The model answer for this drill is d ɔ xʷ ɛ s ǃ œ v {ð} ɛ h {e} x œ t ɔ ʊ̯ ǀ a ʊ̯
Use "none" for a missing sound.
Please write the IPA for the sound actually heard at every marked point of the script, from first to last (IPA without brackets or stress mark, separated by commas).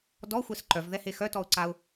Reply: ð, e